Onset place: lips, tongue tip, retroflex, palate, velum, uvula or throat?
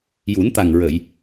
palate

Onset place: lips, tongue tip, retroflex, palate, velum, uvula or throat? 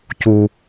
palate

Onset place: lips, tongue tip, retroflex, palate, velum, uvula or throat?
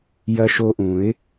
palate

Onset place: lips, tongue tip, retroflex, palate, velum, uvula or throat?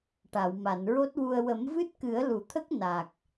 retroflex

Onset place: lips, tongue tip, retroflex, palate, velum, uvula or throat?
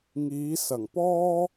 velum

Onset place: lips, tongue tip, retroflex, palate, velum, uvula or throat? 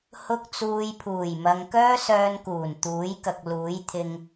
throat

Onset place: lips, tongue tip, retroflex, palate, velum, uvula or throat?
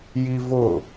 palate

